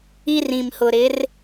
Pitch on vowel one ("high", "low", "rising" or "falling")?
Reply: high